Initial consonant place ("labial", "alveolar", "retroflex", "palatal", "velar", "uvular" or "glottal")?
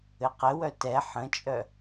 uvular